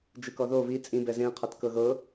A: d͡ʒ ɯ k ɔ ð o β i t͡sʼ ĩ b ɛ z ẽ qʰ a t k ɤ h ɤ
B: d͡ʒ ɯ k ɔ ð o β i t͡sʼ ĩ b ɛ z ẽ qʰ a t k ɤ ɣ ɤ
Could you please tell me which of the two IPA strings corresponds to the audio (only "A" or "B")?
B